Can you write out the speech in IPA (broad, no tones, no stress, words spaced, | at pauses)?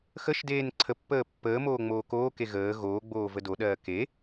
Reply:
xəʃ deːnǀʰəpːəː pːəːmoː ŋ͡moːkoːke ɣəː ɣoːɡ͡boː vədoɗɜː ke